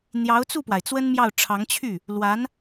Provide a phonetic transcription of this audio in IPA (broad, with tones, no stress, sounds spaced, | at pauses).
n̪ j ɑ˧˥ ʊ̯ t͡s u˥˩ p w a˩ ɪ̯ t͡s w ə˥ n m j ɑ˥˩ ʊ̯ ʈ͡ʂʰ ɑ˧˥ ŋ t͡ɕʰ y˥˩ | l w a˧˥ n